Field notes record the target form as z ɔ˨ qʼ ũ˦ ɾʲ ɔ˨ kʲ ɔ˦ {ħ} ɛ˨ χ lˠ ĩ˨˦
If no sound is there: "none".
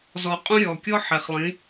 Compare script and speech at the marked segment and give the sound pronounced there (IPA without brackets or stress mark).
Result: ħ